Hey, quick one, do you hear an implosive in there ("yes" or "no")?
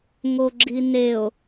no